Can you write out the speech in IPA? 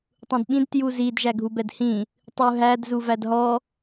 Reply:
tˤũdɓĩd tjuzid ʒæɡʱubɛdhĩ | tˤuɦæd zuvædɦɔ

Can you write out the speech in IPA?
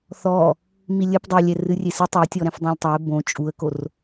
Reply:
θɔ | milʲɘp dˤolʲɛ rɨrʲesɨ tˤetʲɔɾɛ̃f dˤãlʲtˤɐɪ̯ bõ t͡ʃʼuə̯kor

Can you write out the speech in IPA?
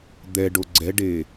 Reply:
d̪ɛɖo ɡ͡ǀɛɖe

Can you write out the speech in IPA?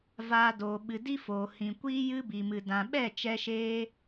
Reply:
vaː˧doː˨ ɓɨ˨ di˦foː˨hĩ˨kʷiː˦ jɨ˦bi˨mɨ˨ dã˨ɓɛ˦˨ t͡ʃɛ˧ʃeː˧

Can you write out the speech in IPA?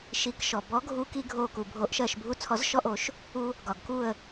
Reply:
ʃi˨˩˦kʃɔ˩ bɔ˨˥ɡʱu˧ki˧ ɡʱo˧˩ku˩ bʱo˨˩˦ʔʃɜ˧˩ʃ bʱu˧˩t͡sʰɔ˨˩˦zʃɔ˧ʔo˨˩˦ʃ | u˧ | ɡɒ˩ɡku˧˩ə̯

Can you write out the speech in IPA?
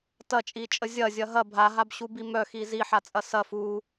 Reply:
tɐt͡ʃʼit͡ʃʼə zʲɐzʲɐ ɦɐ bʱaɦabɕubi mœxi ziħat͡sʼɐ sɐf u

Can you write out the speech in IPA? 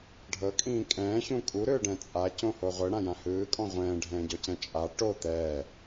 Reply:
ɖʱɤkʼĩː kʼɛ̃ːçũ kʼuɾɯːɖɛ̃ t͡sʼacõho ʁʷɯɽãjã hɯːkʼɔ̃ ʁʷɛ̃ːɖʱɛ̃ːɟɔcɛ̃ t͡ʃʼa ʈo t̪ɛː

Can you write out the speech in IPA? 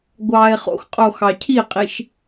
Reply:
ɡʷɑːe̯χo̰xqʼo xɑcʰiqʼiʃ

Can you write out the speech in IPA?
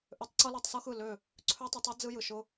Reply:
ʔø˦tˤ ǀɤ˦lɔ˧tˤsɤ˦xɯ˦˨ lø˦˨ | ǀʰø˦tˤɯ˧tˤɯ˦ d͡zɯ˦jɯ˨ʃʊ˦

